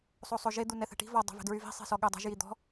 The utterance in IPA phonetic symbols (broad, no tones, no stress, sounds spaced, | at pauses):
sˤ o sˤ o ʒ e d̪ u n ɛ θ ɛ̤ ʈ i̤ v ɔ dˤ e̤ v ɛ̤ d ɹ y v i̤ sˤ i̤ s ɔ ɠ ø dˤ ɛ̤ ʒ j i d̪ ɔ̤